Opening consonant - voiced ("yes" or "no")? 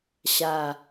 no